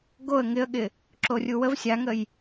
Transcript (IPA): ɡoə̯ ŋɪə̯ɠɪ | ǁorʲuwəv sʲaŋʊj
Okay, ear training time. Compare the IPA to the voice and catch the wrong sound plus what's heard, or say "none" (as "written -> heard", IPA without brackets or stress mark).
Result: ʊ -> ə